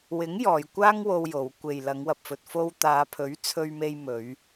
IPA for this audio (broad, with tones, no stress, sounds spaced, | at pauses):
w ɪ˨˥ ŋ j ɔː˨˧ j kʷ aː˥ ŋ w o˧ w j o˨˧ w kʷ e˨ j l ɐ˨˧ ŋ w ɐ˨ p̚ f ɵ˨ t̚ f o˧ w t̪ aː˨˧ pʰ ɵ˨˥ ɥ t͡sʰ ɵ˧ ɥ m e˧ j m ɵ˨˧ ɥ